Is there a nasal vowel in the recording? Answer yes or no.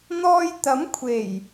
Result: no